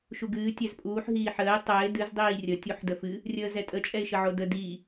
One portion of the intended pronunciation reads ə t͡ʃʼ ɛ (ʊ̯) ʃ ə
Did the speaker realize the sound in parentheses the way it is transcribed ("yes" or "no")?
no